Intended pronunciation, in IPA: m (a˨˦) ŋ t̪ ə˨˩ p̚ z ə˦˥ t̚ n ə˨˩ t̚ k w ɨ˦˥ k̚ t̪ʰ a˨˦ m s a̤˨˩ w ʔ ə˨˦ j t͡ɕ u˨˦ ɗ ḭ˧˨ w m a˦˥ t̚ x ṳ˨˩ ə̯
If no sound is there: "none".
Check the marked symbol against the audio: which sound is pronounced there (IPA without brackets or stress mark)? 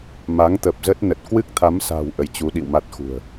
a˨˦